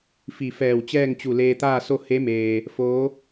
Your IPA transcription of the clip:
f i˧˩ f ɛː˧˩ w t͡ɕ ɛː˥˨ ŋ t͡ɕ u˧˩ l eː˧ t̪ aː˥˨ s o˥˨ h e˧˥ m eː˩ | f oː˧˥

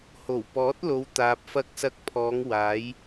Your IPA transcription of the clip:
h o˨˩ w p ɔː˨˥ t̚ l o˨˧ w t̪ aː˨ p̚ f ɐ˧ k̚ s ɐ˧ k̚ pʰ ɔː˨˧ ŋ w aː˨˧ j

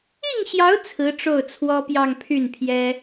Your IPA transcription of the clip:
i˥˩ ŋ ɕ j ɑ˧˥ ʊ̯ t͡sʰ ɹ̩˧˥ ʈ͡ʂ o˥˩ ʊ̯ t͡sʰ w ɔ˥ p j ɑ˥˧ ŋ pʰ y˥˩ n pʰ j ɛ˥

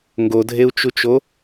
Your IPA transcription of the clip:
ŋ ɡ o dʱ e u̯ t͡ʃ u t͡ʃ o

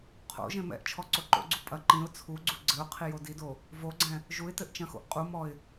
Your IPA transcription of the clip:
qʰ o̰ ʒ ẽ m ɛ̰ ʔ t͡ʃʰ ɔ ǀ o ǃ o̰ ɡ͡ǀ u pʼ ɐ ǃ ĩ ʊ̯ t͡sʰ u ɡ͡ǀ u ɡ͡ǀ ɘ ʊ̯ qʰ i j o d i d o | v o ɡ͡ǀ ɛ̃ | ʒ u ɪ̯ t ɘ ʔ t͡ʃ ɐ̃ x o̰ ʔ qʼ u m ɔ ɪ̯

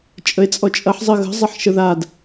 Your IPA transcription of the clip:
t͡ʃʼ ə e̯ t͡sʼ ɔ t͡ʃʼ ɐ ħ zˤ ə ɣ ə̤ zˤ ɐ ħ ʃ ə ð a d

